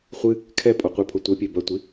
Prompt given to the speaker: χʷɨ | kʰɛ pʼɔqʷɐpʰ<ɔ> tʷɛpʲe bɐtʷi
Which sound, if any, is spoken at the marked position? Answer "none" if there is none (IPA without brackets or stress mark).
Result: o